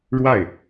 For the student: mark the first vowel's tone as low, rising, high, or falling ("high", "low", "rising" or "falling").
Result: falling